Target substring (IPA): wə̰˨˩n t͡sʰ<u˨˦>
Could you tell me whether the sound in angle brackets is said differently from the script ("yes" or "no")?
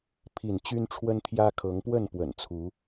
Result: no